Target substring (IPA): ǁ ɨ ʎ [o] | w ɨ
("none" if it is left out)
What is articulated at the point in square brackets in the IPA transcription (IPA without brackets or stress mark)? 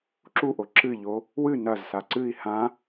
o